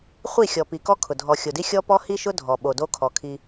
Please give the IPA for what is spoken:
χʷ i˦˨ xʲ ɔ˨ p i˨ k ɔ˦ kʰ ʊ˨ dʱ ɔ˨ xʲ o˨ d i˦ xʲ ɔ˦ p ɔ˦ h i˦ ʃ ʊ˦ dʱ ɔ˨ ɓ o˨ d o˦ kʰ ɔ˨ kʰ i˦

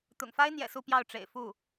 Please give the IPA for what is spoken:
t̪ ʊ̰˨˩ ŋ f a˥ ɪ̯ n̪ j ɛ̰˨˩ s u˥˧ p j ɑ˥˩ ʊ̯ ʈ͡ʂ ḛ˨˩ ɪ̯ f u˥˩

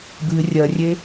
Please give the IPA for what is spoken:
b ɨː rʲ ɜ rʲ e

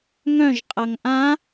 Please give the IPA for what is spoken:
ŋ œ̃ ʒ qʼ ʌ ŋ ʔ ã

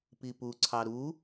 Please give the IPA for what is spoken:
p i p u ǀʰ ɑ ɾ u

